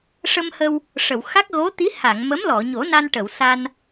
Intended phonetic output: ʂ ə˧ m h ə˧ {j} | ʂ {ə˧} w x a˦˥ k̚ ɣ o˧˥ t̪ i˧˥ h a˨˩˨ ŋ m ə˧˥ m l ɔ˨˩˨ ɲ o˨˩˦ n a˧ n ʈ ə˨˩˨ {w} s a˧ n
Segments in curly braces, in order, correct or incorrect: incorrect: w, incorrect: ə˨˩˨, correct

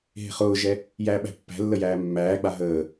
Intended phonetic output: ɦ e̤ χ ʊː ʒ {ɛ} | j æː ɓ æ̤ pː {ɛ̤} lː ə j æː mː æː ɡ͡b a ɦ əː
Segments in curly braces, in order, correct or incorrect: correct, incorrect: æ̤

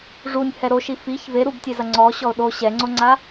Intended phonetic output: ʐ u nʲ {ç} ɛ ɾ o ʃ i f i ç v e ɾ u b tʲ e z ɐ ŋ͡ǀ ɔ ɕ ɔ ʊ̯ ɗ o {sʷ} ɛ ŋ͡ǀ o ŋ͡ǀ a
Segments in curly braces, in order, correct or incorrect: incorrect: h, incorrect: ɕ

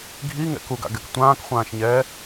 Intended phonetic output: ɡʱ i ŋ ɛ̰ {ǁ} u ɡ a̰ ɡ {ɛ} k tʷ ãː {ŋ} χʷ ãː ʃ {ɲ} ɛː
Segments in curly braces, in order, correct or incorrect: incorrect: k, correct, incorrect: k, correct

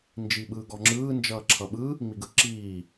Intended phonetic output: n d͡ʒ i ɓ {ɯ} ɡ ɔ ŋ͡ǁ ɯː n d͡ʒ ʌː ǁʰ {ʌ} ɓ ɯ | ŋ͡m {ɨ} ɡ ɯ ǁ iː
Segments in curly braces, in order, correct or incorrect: incorrect: ɯː, correct, incorrect: i

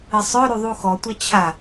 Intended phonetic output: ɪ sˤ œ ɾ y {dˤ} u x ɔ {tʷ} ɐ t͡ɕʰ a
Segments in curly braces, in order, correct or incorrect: incorrect: ðˤ, correct

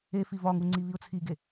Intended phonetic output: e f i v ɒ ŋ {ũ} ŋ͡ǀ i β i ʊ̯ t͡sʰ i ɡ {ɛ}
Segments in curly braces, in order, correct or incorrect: incorrect: u, incorrect: e

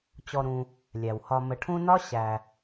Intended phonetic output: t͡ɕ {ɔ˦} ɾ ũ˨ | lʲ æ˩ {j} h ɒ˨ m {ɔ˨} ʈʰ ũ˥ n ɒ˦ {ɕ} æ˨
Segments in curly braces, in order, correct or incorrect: incorrect: ɔ˨, incorrect: w, incorrect: ə˨, correct

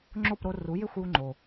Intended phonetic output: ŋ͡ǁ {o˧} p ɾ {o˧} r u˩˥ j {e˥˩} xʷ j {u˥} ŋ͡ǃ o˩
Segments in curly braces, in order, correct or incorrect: incorrect: o˥˩, correct, correct, correct

